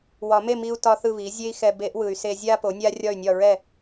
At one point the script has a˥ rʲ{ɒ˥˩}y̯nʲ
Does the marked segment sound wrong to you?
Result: no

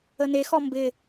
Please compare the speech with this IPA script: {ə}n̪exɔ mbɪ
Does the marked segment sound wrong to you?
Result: no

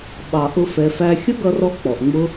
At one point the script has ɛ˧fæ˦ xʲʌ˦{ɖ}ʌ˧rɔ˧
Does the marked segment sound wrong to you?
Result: yes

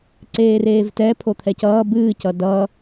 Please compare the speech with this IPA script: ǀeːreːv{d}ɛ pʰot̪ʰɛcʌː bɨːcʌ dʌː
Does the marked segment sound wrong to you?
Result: yes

